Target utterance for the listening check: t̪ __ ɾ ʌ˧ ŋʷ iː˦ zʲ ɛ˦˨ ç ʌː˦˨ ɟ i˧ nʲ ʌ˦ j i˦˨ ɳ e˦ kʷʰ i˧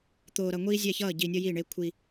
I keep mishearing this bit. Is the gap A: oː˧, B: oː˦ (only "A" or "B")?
A